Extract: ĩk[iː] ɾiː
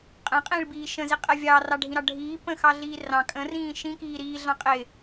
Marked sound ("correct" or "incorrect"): correct